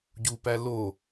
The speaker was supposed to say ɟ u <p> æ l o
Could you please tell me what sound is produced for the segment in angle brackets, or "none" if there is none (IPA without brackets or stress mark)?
p